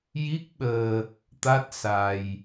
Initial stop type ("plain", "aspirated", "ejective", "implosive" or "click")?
plain